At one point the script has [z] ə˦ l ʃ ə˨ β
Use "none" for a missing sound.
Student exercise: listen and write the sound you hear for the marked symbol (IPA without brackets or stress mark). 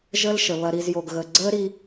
ʒ